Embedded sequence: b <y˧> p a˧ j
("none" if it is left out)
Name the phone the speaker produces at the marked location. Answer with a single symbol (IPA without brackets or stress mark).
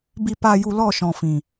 i˧